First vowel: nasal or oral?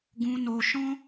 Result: nasal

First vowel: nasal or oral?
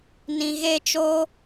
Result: nasal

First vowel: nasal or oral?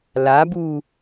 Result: oral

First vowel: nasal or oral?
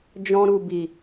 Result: nasal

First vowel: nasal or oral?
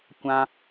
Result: nasal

